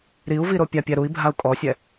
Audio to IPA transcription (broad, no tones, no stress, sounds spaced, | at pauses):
ɾ i u̯ v i ɾ o pʲ a pʲ ɛ ɾ u i̯ bʱ a u̯ kʼ ɔ sʲ ɛ